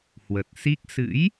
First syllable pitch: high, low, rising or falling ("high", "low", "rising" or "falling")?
low